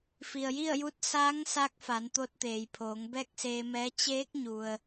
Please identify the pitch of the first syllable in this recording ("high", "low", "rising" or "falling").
low